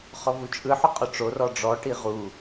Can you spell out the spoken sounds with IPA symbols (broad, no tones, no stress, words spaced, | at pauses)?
χɔvut͡ʃʼɯ ħʊqʼʊʈ͡ʂo rɔɖ͡ʐɔ ʈiʁu